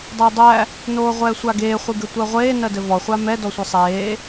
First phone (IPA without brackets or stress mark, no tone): dˤ